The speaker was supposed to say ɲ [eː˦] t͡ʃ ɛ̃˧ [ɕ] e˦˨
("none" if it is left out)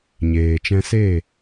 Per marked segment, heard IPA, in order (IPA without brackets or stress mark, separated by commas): eː˨, s